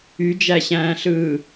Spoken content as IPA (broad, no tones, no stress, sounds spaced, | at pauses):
y d͡ʒ æ ɕ æ̃ː ɬ ɯː